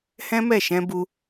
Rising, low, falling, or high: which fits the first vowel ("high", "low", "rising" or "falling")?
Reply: high